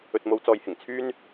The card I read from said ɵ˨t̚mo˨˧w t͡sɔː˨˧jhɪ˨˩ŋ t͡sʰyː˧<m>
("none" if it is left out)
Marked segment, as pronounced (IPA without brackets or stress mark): n